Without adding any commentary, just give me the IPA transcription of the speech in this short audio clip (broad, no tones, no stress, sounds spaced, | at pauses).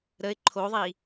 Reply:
ɾ ə ɪ̯ ǃʰ o ðˤ i